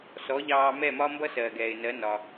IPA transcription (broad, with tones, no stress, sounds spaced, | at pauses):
s ɔ˩˥ ʎ ɑː˧ m ɛ˥˩ m ɒ˥ m b ʌ˥ s ɜː˩ ɡ ɛː˩ ɪ̯ n ɜ˩˥ n ɒ˩